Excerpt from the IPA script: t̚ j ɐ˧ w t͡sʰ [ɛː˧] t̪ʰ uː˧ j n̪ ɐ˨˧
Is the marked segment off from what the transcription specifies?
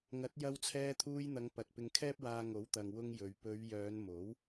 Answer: no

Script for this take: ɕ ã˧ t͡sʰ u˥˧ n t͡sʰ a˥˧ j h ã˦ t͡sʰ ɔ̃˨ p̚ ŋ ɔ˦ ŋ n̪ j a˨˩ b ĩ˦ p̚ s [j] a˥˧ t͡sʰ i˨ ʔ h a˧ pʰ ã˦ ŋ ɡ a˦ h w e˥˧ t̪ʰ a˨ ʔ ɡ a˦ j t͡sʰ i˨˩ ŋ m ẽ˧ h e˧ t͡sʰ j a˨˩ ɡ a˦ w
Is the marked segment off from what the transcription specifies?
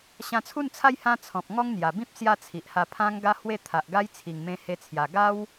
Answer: no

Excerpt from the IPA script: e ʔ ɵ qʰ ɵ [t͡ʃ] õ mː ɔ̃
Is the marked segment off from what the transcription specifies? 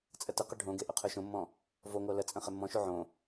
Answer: yes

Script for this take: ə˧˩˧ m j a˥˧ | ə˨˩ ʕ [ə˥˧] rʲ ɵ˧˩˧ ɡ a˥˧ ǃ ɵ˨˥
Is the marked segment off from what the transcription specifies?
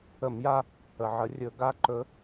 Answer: yes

